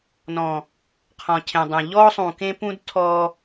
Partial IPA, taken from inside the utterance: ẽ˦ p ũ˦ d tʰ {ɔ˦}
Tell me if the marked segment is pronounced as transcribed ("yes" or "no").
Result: yes